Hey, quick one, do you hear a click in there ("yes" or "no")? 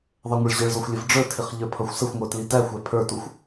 no